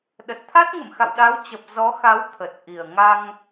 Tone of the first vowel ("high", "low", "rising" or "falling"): low